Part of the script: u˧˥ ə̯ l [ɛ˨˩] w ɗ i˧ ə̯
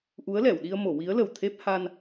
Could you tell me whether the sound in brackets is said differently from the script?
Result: yes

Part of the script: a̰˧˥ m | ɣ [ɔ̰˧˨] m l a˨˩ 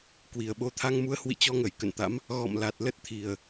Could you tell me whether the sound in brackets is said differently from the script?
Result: no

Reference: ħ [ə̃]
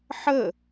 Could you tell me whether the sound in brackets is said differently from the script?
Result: yes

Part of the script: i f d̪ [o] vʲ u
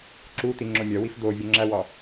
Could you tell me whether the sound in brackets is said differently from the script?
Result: no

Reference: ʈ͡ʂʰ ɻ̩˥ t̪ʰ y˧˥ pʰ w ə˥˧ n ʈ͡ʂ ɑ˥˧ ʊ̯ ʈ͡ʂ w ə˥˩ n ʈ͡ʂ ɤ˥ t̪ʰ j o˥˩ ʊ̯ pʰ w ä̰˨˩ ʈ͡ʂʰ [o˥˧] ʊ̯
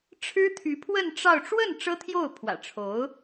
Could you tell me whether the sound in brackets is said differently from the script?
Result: yes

